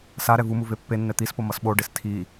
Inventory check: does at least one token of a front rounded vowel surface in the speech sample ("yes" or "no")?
no